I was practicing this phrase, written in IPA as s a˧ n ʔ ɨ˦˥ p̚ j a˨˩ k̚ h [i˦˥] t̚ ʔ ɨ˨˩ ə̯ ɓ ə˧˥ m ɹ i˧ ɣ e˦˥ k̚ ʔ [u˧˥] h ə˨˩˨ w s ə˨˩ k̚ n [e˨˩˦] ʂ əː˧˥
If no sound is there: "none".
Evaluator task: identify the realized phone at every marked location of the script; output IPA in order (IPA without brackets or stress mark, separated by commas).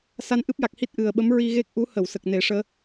i˦˥, u˧˥, e˨˩˦